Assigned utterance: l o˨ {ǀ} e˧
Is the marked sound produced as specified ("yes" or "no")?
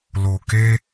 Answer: no